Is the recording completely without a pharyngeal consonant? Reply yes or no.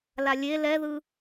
yes